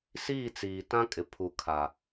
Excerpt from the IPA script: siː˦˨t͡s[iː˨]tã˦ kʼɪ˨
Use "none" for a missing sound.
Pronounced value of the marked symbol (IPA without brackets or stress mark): iː˨